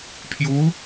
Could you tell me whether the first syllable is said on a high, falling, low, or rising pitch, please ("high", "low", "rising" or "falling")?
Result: rising